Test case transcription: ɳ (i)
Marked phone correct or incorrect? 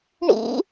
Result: incorrect: ḭ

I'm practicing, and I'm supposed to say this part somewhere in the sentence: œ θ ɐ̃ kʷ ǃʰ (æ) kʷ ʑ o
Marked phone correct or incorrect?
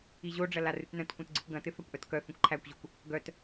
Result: correct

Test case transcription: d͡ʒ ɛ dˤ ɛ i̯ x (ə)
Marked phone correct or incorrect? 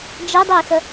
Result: correct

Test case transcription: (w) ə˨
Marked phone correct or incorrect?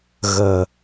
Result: incorrect: ɣ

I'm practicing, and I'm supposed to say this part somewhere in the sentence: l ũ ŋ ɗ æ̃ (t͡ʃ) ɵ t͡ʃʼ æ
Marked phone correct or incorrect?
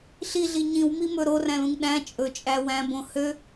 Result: incorrect: t͡ʃʼ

